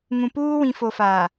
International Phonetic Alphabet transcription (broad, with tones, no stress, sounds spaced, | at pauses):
ŋ ũ˨ p uː˦ w ĩ˨ f o˨ f a˨